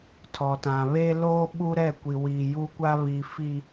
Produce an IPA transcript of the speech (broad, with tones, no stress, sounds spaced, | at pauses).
tʰ ɔ˨ t ã˨ β eː˦ l oː˦ ɓ u˦ ɾ ɛ˦˨ kʷ i˨ w iː˨ j uː˦ kʷ a˦ β i˨ f i˨